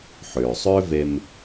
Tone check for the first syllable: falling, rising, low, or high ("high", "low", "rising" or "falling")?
low